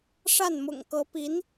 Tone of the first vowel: falling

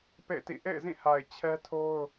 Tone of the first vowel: falling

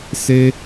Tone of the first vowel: high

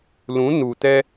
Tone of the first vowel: rising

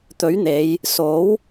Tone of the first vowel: rising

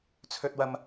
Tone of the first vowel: high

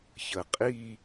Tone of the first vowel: low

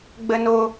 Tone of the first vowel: high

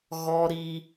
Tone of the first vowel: high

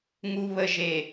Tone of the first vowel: low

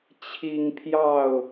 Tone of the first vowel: high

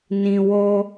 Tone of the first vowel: low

